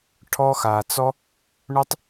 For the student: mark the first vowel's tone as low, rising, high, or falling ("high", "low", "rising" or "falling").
high